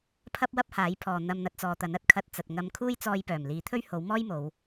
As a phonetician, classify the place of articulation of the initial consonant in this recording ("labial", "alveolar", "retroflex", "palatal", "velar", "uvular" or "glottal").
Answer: labial